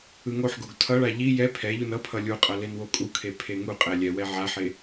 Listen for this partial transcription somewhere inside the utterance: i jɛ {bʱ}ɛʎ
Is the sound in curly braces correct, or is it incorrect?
incorrect